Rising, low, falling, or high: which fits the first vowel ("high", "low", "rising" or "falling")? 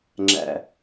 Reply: high